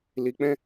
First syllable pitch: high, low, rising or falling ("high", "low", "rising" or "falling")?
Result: low